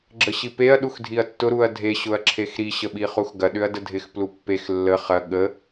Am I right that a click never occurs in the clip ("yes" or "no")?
no